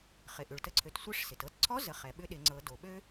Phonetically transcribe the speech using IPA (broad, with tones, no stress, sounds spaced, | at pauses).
χ ɪ˩ ʔ ʏ˩ ɭ t ə˧ ǀʰ ø˩˧ t sʷ ɪ˧˥ ʂ s ɪ˩ t ɤ˧ t ǀʰ ɔ˧˥ z ə˩˧ χ ɛ˩ ɓ ʏ˧ ɗ ɪ˩˧ ŋ͡ǀ ɤ˩˧ d o˩ ɓ ø˥